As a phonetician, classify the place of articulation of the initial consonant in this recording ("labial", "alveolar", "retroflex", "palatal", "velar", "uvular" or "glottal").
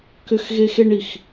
velar